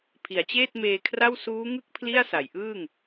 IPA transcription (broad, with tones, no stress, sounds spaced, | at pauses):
pʰ i˩˦ a̯ t͡ɕ eː˥˩ t̚ m eː˧ kʰ r a˥˩ w s uː˦˥ ŋ ɯ˥˩ k̚ pʰ l i˥˩ a̯ s a˩˦ j ʔ ɯː˥˩ ŋ